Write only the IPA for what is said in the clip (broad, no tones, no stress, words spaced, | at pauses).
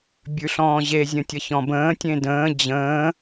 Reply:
bʲʉɬɔ̃ːʑe zʲə̃tʲʌçɔ̃bə̃ː tʲẽdə̃ː d͡ʑə̃ː